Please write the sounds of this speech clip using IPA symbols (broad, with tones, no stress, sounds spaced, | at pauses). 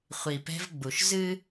χʷ i˨ p ɛ̤˦ v ɡ͡b u˨ ʃ z ɨ˦